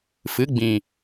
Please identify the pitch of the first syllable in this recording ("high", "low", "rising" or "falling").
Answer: rising